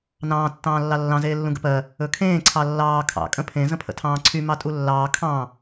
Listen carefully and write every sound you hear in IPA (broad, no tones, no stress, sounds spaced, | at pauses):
n ɑ̃ː tː ɑ̃ː lː ɑ lː ɑ̃ z eː lː ũ ɡ ə̰ p ɜ | ɵ kʰ ẽː ǀʰ ɑ lː ɑː kʰ ɑ̰ kʼ ə̃ pʰ ẽ z ə̃ pʰ ə̰ tʰ ɑ̃ː ǀʰ y m ɑ tʼ u lː ɑː kʰ ɑ̃